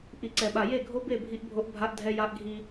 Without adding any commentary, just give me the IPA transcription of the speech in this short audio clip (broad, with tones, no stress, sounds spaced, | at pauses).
ʔ i˨ ǀ ɛ˨ ɓ a˨ j e˦˨ ɡʱ o˦ b e˦˨ bʱ i˦ ʔ bʱ o˦ ʔ bʱ a˦ ʔ dʱ ɛ˦ j a˦ ʔ ɡʱ i˦